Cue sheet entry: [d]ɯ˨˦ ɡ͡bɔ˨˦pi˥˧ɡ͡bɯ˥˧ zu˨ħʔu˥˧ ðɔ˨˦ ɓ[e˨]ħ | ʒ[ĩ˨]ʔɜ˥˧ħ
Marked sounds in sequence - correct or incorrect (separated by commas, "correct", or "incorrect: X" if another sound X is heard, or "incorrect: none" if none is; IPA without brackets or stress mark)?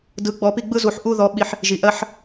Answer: correct, incorrect: i˨, incorrect: i˨